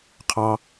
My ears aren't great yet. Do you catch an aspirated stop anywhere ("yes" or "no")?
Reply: yes